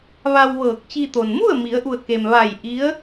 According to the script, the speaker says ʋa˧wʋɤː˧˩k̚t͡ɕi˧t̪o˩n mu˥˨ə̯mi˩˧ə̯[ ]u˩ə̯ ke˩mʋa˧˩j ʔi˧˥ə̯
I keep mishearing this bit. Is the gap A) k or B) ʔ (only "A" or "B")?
B